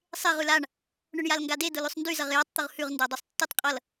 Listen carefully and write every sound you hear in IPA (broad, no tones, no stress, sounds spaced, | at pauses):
sˤ e ʁ ʉ l a ɳ | ɳ ʊ ɳ j a l ŋ ɡ a d e d ʊ l ʉ sˤ n d y z ʌ ʁ j a tˤ t̪ ʊ ʁ h ʉ ʁ n d a dˤ ʉ sˤ tː ʉ tˤ qʼ ʌ l